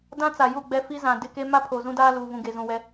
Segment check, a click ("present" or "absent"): absent